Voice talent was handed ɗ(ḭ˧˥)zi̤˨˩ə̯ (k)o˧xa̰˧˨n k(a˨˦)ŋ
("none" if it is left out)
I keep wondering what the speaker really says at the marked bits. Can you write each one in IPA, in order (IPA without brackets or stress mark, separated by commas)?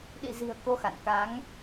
ḭ˧˨, k, a˨˦